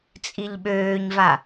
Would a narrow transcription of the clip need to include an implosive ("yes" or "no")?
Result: yes